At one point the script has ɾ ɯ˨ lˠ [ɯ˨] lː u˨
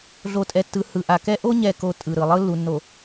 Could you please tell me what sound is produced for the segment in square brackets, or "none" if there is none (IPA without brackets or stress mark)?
ɯ˦